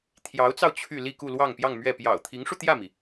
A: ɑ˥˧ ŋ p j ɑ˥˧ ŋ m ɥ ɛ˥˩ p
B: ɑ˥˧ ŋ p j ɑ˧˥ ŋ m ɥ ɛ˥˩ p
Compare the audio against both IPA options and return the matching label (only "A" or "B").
A